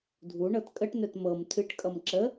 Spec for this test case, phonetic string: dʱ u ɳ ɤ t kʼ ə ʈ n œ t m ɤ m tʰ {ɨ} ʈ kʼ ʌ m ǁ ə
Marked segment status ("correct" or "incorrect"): correct